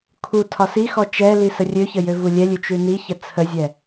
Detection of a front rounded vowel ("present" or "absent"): present